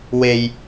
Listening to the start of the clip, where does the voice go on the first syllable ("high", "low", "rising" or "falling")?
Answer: low